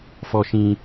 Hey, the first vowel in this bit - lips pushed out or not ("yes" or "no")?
yes